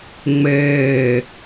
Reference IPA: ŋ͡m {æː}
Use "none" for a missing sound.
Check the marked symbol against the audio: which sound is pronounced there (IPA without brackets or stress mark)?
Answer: ɛː